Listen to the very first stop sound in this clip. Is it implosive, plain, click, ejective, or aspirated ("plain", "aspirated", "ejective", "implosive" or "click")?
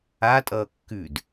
ejective